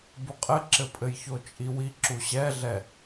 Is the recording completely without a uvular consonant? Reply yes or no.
no